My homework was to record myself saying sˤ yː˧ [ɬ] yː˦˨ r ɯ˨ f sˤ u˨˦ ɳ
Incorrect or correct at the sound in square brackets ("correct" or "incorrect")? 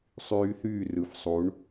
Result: incorrect